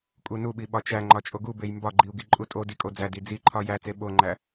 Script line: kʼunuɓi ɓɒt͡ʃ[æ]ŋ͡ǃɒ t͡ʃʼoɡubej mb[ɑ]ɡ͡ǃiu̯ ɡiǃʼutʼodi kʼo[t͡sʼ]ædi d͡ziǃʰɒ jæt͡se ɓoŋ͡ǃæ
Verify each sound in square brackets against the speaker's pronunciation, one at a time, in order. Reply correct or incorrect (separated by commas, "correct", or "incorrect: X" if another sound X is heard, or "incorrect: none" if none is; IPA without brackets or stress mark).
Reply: correct, incorrect: ɒ, incorrect: d͡z